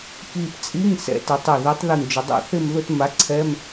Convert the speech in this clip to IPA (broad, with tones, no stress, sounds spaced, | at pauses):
k i˧˩ p t͡sʼ i˧˥˧ ŋ s ɛ̰˨˥ t ɛ˩˧ tˤ ɪ˧˩ ð ɪ˨˥ tˤ ð i˧˩ ŋ d͡ʒ ʊ˩˧ dˤ o̰˥˧ θ ɪ˥˧ m ð ʊ˥˧ t m a˨˥ ǀʰ ɛ˧˥˧ m